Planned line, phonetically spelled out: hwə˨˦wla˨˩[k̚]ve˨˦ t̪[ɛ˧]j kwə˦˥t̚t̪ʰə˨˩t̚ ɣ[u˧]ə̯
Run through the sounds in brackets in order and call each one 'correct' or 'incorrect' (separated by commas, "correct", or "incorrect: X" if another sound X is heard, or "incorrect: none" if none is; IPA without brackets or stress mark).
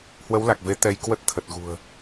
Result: correct, correct, incorrect: ṳ˨˩